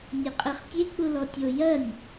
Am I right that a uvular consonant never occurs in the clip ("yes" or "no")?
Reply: no